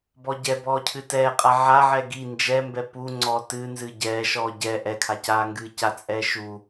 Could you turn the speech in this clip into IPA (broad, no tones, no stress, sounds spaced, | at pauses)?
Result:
b ɔ ɟ ɛ b ɔː cʰ ɨ t ɛː qʼ a ʕ a ʕ ɛ ɡ i n d͡ʒ ɛ m b ɛ p u ŋ͡ǀ ɔː t ɨː n z ɨː ɟ ɛː ʃ ɔː ɟ ɛ ʔ ɛ kʰ a c aː ŋ ɡ ɨː c a t͡sʼ ɛː ʃ u